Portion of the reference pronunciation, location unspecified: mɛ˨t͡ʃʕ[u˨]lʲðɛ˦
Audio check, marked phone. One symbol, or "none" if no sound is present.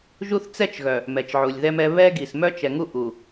u˨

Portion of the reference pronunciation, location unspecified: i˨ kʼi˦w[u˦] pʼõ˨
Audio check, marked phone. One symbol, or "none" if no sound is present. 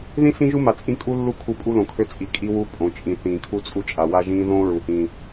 u˦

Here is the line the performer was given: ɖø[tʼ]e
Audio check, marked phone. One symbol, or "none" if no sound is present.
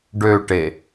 ʈ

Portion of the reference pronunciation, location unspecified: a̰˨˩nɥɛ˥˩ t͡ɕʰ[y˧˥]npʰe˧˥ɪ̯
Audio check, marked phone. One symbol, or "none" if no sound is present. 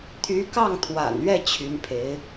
y˧˥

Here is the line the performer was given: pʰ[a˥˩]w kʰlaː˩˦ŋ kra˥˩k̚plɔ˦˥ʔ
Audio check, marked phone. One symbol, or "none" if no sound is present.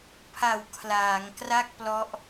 a˨˩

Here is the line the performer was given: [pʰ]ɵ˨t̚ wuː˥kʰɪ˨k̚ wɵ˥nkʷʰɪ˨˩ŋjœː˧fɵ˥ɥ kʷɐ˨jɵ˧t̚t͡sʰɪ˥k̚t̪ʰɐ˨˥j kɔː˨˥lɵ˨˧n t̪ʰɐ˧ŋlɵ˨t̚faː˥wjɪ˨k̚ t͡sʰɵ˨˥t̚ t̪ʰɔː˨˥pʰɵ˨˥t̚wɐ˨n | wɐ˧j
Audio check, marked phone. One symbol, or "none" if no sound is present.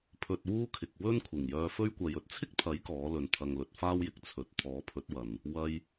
pʰ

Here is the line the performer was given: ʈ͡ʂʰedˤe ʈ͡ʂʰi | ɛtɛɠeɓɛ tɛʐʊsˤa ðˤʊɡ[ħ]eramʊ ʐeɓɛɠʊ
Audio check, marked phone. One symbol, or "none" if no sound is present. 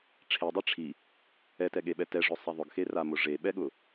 x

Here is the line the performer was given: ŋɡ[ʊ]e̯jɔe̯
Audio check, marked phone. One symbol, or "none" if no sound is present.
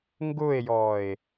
ʊ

